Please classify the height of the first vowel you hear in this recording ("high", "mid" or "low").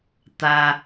low